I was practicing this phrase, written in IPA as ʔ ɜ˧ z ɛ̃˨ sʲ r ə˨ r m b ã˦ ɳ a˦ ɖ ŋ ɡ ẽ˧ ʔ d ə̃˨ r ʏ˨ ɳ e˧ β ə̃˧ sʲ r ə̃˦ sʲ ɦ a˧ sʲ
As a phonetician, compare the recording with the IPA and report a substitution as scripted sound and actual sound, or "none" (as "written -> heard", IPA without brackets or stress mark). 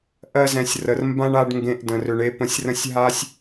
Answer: β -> p